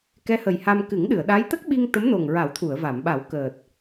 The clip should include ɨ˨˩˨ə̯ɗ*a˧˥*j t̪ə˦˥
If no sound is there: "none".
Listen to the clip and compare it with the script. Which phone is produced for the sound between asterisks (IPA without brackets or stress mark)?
a˧˥